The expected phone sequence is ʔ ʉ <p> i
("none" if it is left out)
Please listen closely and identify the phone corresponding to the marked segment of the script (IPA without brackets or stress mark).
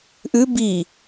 b